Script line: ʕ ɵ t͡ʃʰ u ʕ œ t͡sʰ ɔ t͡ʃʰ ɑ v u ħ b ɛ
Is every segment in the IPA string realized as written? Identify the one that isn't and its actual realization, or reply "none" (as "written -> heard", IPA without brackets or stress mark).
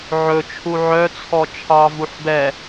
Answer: none